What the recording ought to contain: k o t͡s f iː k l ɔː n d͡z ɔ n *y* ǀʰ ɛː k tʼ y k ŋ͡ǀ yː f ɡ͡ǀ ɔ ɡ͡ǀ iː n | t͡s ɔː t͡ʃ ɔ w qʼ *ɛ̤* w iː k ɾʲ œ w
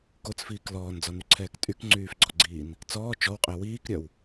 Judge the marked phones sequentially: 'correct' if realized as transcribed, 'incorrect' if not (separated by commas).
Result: correct, incorrect